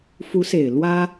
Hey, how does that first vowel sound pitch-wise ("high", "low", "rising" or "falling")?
rising